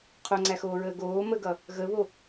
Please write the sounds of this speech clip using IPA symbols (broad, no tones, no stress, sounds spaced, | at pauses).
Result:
qʰ o ŋ͡ǀ æ x oː ɹ əː ɡ oː m ə ɡ ʌ | ɣ ə β o